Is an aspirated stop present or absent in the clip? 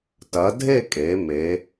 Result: absent